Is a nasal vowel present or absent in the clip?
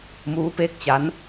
absent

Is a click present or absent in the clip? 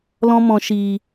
absent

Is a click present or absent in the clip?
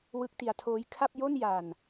absent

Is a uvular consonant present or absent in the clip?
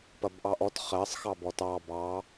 present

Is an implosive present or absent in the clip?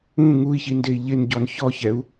absent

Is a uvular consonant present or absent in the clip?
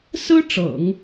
absent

